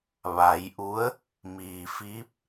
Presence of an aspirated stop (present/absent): absent